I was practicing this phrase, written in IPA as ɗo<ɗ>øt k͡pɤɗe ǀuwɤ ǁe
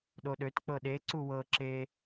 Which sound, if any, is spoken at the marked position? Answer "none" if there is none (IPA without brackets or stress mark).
ɗ